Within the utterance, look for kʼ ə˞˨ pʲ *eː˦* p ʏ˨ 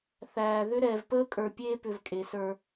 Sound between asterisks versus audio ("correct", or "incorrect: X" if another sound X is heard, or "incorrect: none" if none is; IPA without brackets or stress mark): correct